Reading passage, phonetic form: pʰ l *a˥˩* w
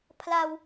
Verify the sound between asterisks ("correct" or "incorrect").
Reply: incorrect